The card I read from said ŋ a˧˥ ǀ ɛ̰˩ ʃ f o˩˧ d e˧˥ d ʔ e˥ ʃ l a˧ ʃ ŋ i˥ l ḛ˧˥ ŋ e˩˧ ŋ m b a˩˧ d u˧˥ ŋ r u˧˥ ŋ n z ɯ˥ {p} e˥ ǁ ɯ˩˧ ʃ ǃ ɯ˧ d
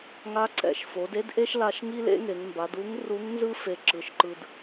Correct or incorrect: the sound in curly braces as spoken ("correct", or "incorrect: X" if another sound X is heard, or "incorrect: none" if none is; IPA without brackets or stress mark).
incorrect: f